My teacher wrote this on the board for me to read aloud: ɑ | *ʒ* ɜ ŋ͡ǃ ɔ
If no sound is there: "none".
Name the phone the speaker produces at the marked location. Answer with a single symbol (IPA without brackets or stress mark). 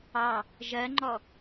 ʒ